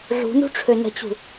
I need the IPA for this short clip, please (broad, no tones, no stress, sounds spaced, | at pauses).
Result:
ɮ ṳ n ṳ ʈ͡ʂʰ ø n ə̤ t͡ɕ ṳ